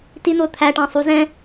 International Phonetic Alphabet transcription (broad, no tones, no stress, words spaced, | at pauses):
tin̪ʊː t̪ʰæʈɑ̃ sˤu zɛ̃